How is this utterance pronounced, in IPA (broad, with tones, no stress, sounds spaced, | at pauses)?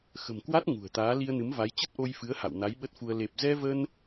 x ə̤˨˩ m k w a˦˥ t̚ ŋ ṳ˨˩ ə̯ t̪ aː˨˦ l i˧ ə̯ n ɨ˨˦ m v a˨˦ j t͡ɕ ə˦˥ t̚ ʔ o˧ j f ɨ˨˦ ə̯ h a̰˧˨ w n a˨˦ j ɓ ə˦˥ t̚ f u˧ ə̯ l e˨˩ p̚ z ɛ˧ v ə˧ n